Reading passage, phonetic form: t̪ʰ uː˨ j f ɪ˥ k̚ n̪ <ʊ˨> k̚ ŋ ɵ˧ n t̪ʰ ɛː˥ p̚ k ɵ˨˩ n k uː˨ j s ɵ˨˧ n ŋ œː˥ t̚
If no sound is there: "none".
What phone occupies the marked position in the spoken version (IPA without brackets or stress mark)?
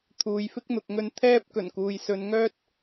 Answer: ʊ˨